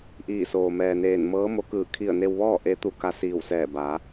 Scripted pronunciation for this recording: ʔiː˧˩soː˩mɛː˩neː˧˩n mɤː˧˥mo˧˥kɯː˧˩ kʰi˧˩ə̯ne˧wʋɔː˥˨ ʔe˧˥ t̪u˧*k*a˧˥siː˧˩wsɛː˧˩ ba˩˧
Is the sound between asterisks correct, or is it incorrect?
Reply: correct